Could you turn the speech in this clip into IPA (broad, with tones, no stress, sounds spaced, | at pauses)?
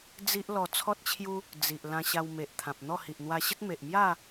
d͡z i˦ ʔ l ɔ˧ t͡sʰ ɔ˦ t̚ t͡ɕʰ j u˦ | d͡z i˨ ʔ l ã˧ ɕ a˧ w m e˨ ʔ t̪ʰ ã˨ p̚ n̪ ɔ˥˧ h i˨ ʔ n̪ w a˧ ɕ ə˦ t̚ m e˨ ʔ m j a˥˧